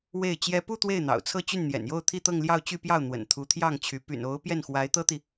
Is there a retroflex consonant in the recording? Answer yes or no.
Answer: no